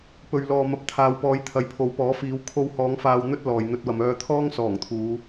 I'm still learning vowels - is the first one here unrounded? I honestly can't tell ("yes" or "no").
no